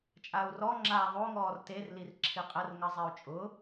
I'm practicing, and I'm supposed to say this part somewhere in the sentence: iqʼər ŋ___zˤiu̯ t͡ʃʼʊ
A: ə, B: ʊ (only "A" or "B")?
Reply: A